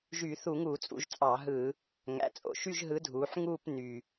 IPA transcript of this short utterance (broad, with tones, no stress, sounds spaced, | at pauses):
ʒ yː˧˩˧ θ u˧˩˧ ŋ uː˧˩˧ t͡sʼ ṵ˩˧ ʒ t͡sʼ ɑ˧˩˧ ɦ ɯ˧˩˧ | ŋ æ̰˩˧ t͡sʼ o̰˨˩ ʃ y˥˧ ʒ ɦ ɯ˨˥ dʱ uː˩˧ ħ ŋ uː˥˧ p n y˨˩